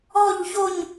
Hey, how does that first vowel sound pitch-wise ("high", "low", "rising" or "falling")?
falling